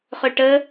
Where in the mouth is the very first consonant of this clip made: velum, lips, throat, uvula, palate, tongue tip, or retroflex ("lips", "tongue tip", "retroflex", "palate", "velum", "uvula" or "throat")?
uvula